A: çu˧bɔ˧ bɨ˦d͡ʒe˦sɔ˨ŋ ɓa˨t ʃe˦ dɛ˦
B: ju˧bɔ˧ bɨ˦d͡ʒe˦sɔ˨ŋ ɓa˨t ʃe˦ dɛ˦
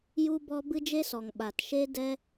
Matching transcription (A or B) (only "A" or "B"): B